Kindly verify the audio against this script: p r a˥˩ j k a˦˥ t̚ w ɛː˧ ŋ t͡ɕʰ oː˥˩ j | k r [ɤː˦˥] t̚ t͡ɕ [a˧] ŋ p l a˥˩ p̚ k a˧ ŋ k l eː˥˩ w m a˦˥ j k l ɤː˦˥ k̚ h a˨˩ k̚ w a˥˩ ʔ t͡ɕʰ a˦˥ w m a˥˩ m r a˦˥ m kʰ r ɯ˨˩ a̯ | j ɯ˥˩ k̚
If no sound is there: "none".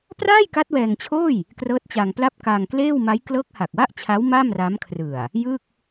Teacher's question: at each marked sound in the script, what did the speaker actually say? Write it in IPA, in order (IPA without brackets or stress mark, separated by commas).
ɤː˦˥, a˧